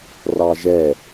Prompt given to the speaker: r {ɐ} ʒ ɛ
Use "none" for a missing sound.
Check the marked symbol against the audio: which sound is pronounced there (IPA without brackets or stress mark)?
ɑ